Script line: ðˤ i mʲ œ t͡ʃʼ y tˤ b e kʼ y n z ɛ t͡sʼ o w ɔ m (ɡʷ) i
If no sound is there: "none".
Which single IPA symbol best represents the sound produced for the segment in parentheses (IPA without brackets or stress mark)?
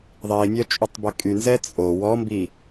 b